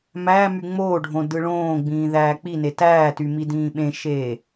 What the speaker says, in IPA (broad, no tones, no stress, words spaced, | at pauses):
mæmy ŋ͡moːɖʱõ dɯɭõːɡ͡bĩː ðæːk͡pine tæːty midĩːɓẽʃeː